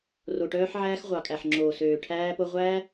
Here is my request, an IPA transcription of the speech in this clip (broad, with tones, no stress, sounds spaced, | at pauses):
r o˨ ʈ œː˧ ħ ʕ æː˧ x ʁʷ ɑ˨ kʼ æ˨ ħ ŋ͡ǁ oː˨ s øː˨ ʈʰ æː˧ p o˧ ʁʷ æː˦